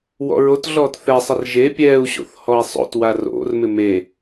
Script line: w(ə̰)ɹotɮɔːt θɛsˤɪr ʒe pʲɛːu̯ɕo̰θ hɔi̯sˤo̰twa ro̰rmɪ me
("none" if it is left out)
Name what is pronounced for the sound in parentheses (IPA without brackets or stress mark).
ɔ̰